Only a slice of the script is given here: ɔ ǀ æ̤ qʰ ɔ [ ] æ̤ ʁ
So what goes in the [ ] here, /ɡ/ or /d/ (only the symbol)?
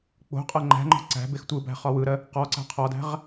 d